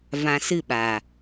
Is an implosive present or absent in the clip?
present